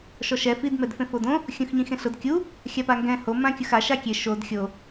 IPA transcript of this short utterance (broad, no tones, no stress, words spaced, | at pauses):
ʃɔʃɛ fid mɛdfẽfodõ | xʲũxɲĩxẽɬʊd kʲu | xʲapaŋɡɛ̃ ho mãkʲʊxa ʃakʲe ʃod xʲo